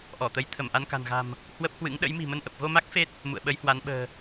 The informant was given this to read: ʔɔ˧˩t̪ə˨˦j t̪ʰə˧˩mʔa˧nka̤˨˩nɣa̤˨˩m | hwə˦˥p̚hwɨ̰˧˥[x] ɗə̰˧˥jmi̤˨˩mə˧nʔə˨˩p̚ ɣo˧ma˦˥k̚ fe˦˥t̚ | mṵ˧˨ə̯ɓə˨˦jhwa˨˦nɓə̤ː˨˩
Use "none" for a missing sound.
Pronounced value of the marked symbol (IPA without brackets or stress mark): ŋ